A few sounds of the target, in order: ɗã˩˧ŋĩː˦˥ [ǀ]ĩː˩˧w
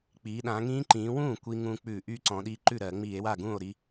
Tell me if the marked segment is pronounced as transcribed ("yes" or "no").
no